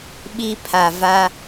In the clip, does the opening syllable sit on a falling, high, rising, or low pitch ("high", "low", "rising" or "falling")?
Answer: high